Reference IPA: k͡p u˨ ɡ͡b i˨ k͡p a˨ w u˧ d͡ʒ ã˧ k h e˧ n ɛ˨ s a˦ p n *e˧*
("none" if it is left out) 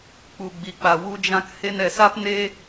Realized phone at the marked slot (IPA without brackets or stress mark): e˧